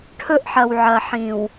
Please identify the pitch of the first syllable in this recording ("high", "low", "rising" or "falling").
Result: high